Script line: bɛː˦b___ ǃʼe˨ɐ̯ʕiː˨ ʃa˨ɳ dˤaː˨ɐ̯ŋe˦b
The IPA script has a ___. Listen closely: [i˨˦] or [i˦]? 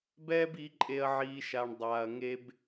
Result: i˨˦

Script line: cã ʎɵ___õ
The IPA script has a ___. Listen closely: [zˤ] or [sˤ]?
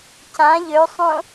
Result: sˤ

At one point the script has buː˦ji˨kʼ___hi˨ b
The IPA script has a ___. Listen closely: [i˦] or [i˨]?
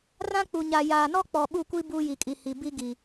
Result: i˨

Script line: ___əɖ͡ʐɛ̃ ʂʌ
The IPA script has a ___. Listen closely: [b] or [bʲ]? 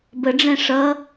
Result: b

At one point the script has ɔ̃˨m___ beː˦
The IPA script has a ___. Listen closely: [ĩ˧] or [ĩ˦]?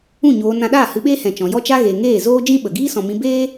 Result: ĩ˧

